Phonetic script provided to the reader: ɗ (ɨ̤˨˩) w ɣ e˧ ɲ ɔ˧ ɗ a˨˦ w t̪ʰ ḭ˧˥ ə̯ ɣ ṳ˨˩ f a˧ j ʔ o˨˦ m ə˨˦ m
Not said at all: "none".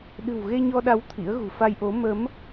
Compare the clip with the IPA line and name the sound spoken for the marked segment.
ɨ̤˨˩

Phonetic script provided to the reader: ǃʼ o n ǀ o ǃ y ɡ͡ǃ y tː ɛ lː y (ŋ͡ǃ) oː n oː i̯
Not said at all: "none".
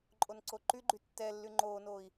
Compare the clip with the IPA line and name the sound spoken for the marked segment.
ŋ͡ǃ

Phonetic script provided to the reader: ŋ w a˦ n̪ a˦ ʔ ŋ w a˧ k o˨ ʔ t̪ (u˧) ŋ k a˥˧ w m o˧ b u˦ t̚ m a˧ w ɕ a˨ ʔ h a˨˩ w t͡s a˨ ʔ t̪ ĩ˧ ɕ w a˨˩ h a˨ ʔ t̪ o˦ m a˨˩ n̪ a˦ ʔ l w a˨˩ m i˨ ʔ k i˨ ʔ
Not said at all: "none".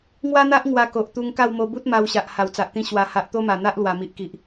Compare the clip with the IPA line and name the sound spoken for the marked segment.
u˧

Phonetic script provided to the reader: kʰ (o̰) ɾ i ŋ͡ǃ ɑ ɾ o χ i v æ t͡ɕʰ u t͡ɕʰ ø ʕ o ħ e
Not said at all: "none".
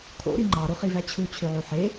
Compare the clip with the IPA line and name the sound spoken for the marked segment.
o̰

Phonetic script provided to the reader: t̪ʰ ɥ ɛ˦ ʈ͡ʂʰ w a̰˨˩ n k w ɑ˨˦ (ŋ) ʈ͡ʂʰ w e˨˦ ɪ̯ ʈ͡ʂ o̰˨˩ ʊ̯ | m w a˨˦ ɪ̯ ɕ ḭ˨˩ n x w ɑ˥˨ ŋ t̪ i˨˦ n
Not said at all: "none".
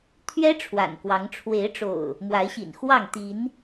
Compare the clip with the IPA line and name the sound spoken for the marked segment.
ŋ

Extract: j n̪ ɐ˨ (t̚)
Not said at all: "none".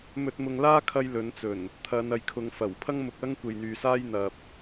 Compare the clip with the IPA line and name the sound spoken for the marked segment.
p̚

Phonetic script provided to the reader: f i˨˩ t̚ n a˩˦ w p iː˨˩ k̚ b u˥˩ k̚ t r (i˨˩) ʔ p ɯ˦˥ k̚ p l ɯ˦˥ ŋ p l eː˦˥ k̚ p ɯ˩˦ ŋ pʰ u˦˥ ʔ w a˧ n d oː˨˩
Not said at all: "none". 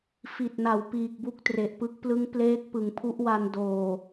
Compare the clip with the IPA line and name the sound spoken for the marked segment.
e˨˩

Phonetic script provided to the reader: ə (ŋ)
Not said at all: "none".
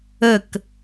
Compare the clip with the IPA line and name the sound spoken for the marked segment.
k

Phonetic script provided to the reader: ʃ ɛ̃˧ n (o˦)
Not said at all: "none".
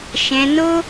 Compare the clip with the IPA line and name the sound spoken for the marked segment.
o˦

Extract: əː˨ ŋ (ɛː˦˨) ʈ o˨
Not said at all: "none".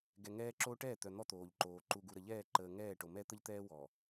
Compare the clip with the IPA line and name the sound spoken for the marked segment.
ɛː˦˨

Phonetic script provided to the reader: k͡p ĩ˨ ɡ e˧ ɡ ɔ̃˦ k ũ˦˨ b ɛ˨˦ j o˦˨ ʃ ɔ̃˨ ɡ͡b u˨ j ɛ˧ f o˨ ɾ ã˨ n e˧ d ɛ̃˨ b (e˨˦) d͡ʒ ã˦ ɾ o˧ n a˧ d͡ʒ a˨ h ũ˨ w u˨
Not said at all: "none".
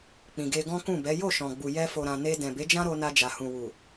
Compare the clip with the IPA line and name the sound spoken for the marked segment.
e˨˦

